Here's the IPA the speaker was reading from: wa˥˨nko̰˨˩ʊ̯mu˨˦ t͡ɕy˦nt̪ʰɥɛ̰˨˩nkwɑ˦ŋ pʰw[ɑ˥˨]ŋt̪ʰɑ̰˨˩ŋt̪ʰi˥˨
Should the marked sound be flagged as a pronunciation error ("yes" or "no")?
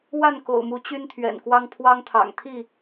yes